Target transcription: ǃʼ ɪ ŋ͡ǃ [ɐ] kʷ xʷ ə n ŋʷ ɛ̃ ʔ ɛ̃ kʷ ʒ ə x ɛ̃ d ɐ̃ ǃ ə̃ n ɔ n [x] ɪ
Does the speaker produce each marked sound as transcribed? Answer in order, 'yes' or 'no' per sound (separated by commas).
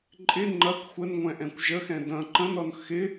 yes, yes